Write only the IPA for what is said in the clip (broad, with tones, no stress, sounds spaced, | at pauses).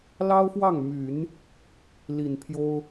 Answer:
l ɑ˥ ʊ̯ f w ɑ˥˩ ŋ m y˨˩˦ n | l i˨˩ n pʰ j o˥ ʊ̯